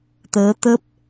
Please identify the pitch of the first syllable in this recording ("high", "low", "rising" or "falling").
rising